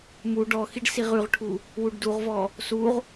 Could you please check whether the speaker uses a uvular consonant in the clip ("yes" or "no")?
yes